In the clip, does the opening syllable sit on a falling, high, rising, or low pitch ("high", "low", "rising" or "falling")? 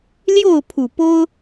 falling